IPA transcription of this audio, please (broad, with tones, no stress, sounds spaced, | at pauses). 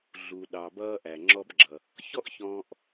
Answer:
ɮ u˩ ɗ ɑ˩ b ʌː˧ ʔ æ˩ ŋ͡ǁ ɔ˧ b ɡ͡ǁ ʌ˩ | ç ɔ˥ ʔ ç ɔ̃ː˧ ʔ